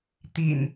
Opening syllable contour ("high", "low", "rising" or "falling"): low